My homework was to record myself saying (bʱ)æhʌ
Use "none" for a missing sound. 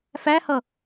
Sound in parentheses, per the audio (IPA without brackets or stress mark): f